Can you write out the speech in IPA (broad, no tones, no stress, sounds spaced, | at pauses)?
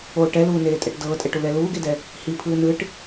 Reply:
o ʈ ɛ l uː n eː tʼ ɛ ʈ d ɤː tʼ ɛ ʈ u l ɛ l uː ɡ e d ɛ | h i pʰ ɯː n ɯ ʈ